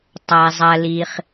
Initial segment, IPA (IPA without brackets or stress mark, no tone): tˤ